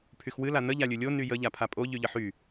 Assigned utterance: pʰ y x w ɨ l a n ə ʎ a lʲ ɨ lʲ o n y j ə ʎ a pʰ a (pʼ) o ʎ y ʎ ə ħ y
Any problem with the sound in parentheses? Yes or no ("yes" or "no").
no